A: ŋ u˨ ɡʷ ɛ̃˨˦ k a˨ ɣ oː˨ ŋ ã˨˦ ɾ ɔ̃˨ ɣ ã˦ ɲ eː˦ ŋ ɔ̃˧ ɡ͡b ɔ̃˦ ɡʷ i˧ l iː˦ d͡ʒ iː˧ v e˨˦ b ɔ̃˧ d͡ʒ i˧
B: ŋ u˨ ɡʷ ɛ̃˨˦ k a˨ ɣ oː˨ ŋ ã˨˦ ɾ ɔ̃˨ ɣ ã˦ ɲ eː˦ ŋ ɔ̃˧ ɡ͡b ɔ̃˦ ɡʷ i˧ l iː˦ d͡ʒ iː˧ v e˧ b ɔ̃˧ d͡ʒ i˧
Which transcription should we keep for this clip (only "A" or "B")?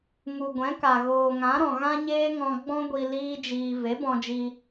A